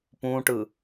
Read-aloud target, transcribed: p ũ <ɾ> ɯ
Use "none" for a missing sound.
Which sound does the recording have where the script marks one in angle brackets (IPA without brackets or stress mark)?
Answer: ʈ